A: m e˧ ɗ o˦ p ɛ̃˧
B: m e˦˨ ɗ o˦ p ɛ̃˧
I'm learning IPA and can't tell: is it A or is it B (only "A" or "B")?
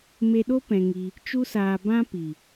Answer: A